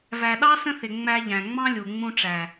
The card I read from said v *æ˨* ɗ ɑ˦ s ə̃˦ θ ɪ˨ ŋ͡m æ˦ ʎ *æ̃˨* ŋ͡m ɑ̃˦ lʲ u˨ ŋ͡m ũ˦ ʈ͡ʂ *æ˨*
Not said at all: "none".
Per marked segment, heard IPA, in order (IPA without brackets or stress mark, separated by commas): æ˨, æ̃˨, æ˨